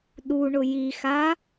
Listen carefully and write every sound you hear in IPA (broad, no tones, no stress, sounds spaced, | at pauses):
ɗ u ɳ ʊ j i x a